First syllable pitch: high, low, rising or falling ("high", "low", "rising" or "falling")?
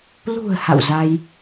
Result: low